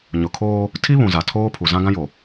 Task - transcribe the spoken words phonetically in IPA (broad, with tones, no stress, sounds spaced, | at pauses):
ɲ ʊ˨ kʰ oː˦ | tʰ i˦ β ũ˨ z a˨ tʰ oː˦ pʰ u˨ z ã˦ ɡ ã˦ j o˨